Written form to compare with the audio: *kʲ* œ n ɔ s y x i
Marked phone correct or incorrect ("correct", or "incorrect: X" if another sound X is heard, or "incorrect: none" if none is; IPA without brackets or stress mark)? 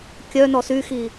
correct